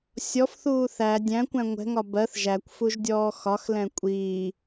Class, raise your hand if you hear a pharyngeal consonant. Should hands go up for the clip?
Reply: no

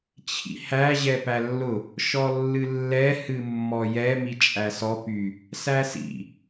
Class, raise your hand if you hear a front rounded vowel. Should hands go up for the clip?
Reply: yes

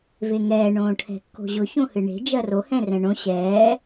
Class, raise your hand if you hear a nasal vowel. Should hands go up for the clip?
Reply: yes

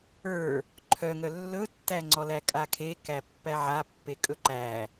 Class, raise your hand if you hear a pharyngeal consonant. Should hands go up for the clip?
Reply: yes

